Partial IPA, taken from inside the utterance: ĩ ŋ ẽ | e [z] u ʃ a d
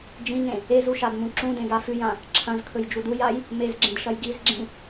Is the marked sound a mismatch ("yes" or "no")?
no